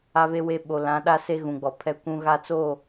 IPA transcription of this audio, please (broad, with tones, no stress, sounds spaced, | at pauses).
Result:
a˦ β e˦ w e˦ ɓ o˨ l ã˨˦ ɗ a˦ s e˦ ɣ ũ˨ ɡ͡b ɔ˨ pʰ ɛ˦ kʷ ũ˦ ɣ a˦ t͡s o˦˨